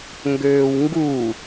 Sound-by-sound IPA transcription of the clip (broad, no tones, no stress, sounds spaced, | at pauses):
ŋ ɡ øː w ŋ ɡ u